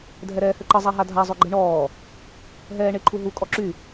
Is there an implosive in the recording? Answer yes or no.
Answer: no